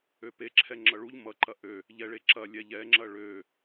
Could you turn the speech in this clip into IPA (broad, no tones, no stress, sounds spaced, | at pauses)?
ø p e ǁʰ ɛ ŋ͡ǁ ʌ ɭ u ʎ m ʌ ǃ ɐ ʔ ø | ʎ ɛ ɭ e ǁ ɐ lʲ ɛ ʎ ɛ ŋ͡ǁ ɐ ɭ ø